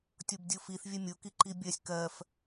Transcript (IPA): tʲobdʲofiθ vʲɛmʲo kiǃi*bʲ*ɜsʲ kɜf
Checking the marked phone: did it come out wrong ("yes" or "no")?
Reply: no